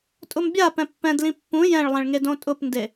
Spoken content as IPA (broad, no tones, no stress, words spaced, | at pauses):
tʼʊmbʲa pɛ̃pːɛ̃dlĩ pːũ jɛ̃ɭlˠɛ̃ɭŋed õtʼʊpnde